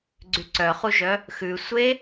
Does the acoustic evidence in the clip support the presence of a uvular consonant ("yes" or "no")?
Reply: yes